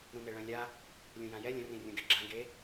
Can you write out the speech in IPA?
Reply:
ɾ ũ n e ɭ œ̃ lʲ a | lʲ ũ j ã j ɛ lʲ ə̃ r ĩ rʲ ũ ɡ ɛ ɡ͡ǁ ã ɡ e

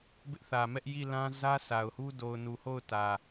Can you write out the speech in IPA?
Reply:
b ɪ˦ ʔ θ ä˨ m ɛ˦ ʔ j i˦˨ l ã˦ z ä˦ s a˨ ʊ̯ h u˦ d o˨ ʊ̯ n u˨ h o˦˨ ʊ̯ t ä˨

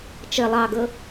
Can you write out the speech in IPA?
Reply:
t͡ʃ ɘ lˠ ɑ ɡ ɤ

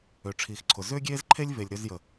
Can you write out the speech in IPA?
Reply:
ø˨ ʈ͡ʂʰ iː˨ x ǀʰ ʊ˨ z ʏː˦ ɡʲ eː˦ z ǃʰ e˦ lʲ v e˨ lʲ ɾ ø˧ z j ə˨

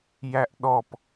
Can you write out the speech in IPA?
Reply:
j æ ʔ ɗ ɔ p

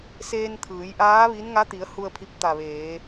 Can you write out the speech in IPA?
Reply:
s eː˧ n t̪ʰ ɯː˩˧ j ʔ aː˧˥ ʋ i˧˥ n ŋ a˧˥ t̪ i˩˧ ə̯ h u˧ ə̯ pʰ i˧ p̚ t̪ a˧˩ ʋ eː˩˧

